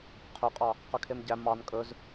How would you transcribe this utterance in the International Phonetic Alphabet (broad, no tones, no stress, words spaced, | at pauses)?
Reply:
qʰɵqʼɑ | qœkʰemɟæ mɑn kʼɵz